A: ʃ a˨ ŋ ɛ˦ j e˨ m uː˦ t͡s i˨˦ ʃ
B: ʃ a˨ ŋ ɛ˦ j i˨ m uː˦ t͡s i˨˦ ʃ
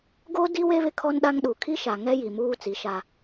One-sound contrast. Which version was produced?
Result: B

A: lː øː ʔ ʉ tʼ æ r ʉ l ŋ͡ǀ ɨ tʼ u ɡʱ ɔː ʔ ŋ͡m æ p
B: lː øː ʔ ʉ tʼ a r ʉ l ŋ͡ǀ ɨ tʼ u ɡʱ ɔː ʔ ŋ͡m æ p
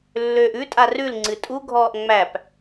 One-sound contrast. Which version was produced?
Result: B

